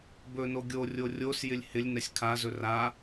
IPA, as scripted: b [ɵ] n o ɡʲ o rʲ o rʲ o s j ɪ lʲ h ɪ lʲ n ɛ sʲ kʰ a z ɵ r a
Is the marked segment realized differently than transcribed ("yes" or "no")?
no